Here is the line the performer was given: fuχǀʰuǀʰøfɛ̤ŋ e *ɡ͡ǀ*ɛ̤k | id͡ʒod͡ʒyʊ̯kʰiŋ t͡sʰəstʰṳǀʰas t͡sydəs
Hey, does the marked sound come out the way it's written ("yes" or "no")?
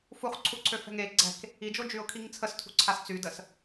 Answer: yes